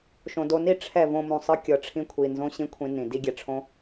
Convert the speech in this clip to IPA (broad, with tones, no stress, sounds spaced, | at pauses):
ʃ õ˨ d o˧ n i˦˨ ʈ͡ʂʰ ɛ˦˨ v õ˧ m ũ˨ sˤ ɯ˦ kʲ ɤ˧ ʈ͡ʂʰ ĩ˦ kʷʰ i˨ n z õ˦ ɕ ĩ˦ kʷʰ ĩ˧ n ĩ˨ d i˦ ɡʲ ɛ˧ ʈ͡ʂʰ õ˦